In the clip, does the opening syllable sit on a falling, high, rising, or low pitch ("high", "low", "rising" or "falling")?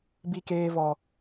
high